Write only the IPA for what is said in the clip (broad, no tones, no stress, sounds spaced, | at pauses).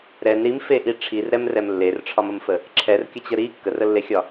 ɾ ɛ n ɾ i m f e ʔ i ʈ͡ʂʰ i r ɾ ɛ m r ɛ m lː e r ʈ͡ʂʰ ɒ m ə m f ə | ǁʰ ɛ r kʲ ə t͡ɕ ə ɾ i kː ə r ə lː e xʲ ɒ